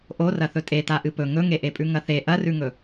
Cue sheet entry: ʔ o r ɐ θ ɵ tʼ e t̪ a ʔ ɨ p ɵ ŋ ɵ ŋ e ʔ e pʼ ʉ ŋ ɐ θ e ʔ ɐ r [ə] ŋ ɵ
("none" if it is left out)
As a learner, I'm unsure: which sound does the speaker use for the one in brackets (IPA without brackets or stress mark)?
ʉ